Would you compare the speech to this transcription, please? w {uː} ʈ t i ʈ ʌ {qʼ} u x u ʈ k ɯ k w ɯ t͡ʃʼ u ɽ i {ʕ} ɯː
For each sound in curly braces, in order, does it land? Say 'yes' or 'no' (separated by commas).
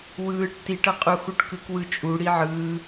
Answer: no, yes, yes